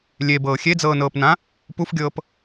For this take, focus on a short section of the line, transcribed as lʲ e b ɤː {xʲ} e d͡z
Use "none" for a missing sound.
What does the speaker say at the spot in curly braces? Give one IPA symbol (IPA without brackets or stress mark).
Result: xʲ